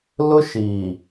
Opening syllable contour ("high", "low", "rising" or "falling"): high